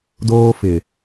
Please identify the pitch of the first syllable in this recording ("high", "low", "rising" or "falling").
high